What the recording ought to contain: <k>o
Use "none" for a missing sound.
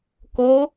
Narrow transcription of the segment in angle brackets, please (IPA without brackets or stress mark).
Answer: k